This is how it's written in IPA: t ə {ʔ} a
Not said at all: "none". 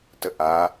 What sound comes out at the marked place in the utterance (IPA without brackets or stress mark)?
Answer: ʔ